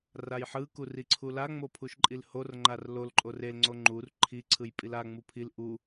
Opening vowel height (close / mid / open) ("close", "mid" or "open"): open